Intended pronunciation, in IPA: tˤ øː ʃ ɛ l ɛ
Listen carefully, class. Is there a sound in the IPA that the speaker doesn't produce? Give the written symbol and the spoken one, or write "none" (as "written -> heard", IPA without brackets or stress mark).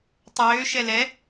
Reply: none